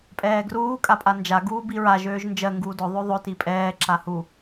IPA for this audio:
pʼɛːɡruː kʼapʼand͡ʒa ɡuːbiɹa ʒøːʒnd͡ʒɜ ŋɡuːdʊ ðˤøðˤɵ tipʼɛː ǁahu

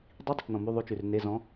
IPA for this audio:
dˤi˧˥˧dˤɘ˨t͡ʃnɔ̃˨ my˧˥˧ðˤʉ˧˥t͡ʃʉ˨rne˧˥˧ zɔ̃˧˥

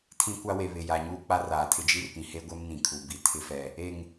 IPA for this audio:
tʰĩ˦kʷa˦we˨ βɪ˨ja˨ɲuː˦k͡pa˦ raː˨tʰɪ˦ d͡ʒi˦rpĩ˨he˦ɡʷɛ˦m nĩ˨kʰu˨ bi˨ tʰɪ˦fɛ˨ | e˨ŋ

